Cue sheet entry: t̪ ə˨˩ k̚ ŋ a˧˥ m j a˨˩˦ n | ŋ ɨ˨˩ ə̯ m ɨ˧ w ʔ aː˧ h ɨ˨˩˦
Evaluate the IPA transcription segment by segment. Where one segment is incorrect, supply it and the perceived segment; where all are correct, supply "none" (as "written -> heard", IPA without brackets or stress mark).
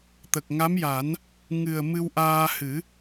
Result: none